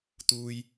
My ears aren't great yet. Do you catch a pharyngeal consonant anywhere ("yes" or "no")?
no